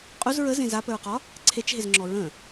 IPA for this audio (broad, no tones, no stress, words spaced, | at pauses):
qʼuz ɹəzẽ zapəɹqɒ | ǀʰet͡ʃɦezŋ͡ǁɔ ɹə̃